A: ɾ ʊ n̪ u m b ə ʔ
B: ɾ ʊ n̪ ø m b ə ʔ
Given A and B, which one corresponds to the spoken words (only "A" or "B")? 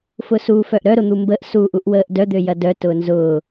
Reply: A